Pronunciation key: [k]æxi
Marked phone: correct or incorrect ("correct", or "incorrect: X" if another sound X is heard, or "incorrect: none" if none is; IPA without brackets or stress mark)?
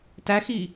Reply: incorrect: t